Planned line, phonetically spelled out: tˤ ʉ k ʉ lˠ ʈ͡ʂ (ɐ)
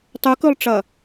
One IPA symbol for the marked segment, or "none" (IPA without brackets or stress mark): ɐ